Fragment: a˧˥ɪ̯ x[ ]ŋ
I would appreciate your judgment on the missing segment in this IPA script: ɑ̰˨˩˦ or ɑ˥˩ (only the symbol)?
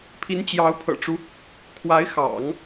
ɑ̰˨˩˦